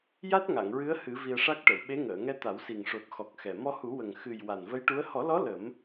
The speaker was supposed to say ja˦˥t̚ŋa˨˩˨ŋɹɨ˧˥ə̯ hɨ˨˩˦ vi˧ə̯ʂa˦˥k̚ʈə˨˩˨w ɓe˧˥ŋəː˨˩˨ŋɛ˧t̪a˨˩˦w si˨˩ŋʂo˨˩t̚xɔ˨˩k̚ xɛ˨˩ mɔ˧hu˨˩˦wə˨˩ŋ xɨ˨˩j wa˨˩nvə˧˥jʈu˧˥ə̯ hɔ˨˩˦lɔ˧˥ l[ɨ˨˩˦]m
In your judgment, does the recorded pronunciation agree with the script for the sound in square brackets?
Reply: no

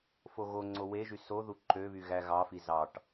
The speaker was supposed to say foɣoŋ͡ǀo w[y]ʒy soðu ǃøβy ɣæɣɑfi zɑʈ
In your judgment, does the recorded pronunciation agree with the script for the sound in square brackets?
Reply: no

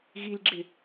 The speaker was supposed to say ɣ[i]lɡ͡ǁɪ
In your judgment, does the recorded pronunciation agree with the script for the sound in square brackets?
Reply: yes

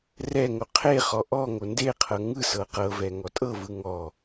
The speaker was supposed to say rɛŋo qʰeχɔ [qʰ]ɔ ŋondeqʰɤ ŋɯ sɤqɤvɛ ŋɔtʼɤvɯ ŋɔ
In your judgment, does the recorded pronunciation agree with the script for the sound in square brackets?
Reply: no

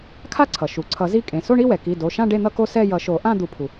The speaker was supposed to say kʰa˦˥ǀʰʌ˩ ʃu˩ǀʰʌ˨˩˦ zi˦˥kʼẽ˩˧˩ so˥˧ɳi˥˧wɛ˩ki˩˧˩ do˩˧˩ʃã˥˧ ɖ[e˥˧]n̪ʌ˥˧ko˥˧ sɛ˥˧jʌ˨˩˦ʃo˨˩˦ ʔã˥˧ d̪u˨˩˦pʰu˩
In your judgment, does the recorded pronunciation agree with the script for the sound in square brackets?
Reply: yes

